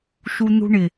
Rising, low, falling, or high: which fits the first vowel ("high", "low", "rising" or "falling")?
low